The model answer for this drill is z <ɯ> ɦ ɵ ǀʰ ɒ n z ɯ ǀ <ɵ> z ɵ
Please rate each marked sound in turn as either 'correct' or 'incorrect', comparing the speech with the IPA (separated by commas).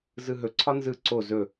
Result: correct, incorrect